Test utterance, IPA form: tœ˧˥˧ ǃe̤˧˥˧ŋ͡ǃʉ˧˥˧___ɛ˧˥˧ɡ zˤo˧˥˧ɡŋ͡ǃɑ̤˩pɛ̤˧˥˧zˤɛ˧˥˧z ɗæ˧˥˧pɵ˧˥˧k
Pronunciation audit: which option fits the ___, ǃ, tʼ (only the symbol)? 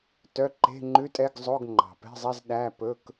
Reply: tʼ